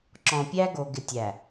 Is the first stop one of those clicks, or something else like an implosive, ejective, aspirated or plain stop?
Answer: click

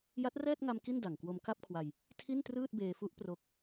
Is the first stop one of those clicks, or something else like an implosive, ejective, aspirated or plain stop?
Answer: plain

